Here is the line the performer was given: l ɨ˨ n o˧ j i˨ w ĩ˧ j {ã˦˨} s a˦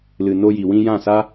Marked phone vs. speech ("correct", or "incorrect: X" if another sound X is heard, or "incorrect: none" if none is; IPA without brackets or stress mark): correct